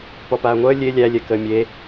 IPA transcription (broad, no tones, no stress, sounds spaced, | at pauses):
p ɔ p aː ŋʷ əː lʲ e lʲ æ lʲ ɛ k əː mʲ e